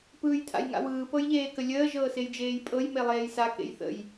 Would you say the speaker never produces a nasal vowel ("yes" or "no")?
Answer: yes